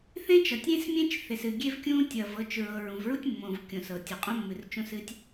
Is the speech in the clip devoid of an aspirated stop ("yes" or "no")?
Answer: yes